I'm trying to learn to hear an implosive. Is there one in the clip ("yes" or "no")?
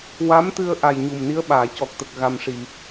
yes